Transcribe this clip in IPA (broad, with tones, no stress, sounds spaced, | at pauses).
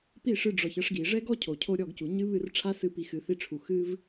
p i˦˨ ʂ ɨ˧ ɖ͡ʐ ɔ˨ ç ɐ˦ ʂ ɡ i˨ ʐ ɛ˦ ɡ ɔ˦ cʰ o˨ cʰ o˦ ɾʲ ɔ˦˨ ɡ c u˨ ɲ ɨ˦ β ɨ˦˨ r ʈ͡ʂʰ a˦ s ɨ˦˨ p i˧ x ɨ˨˦ θ i˦ ʈ͡ʂʰ u˧ x ɨ˦ v